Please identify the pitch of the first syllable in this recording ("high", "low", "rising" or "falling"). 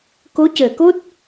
rising